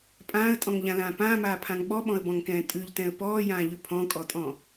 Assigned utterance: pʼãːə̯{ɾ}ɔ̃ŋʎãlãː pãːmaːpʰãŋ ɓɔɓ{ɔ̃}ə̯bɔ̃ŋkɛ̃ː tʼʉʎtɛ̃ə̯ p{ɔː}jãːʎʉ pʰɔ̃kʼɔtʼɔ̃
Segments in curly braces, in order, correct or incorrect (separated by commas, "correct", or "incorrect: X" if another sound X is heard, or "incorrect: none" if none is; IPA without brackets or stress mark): incorrect: tʼ, correct, correct